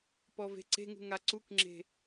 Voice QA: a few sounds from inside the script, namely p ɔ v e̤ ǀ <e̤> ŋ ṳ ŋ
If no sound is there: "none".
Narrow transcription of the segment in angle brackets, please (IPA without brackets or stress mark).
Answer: e̤